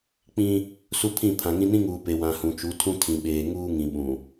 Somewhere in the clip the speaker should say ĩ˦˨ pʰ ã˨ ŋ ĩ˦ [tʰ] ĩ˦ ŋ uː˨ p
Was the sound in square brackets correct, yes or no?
no